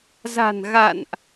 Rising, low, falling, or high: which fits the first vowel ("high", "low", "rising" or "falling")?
low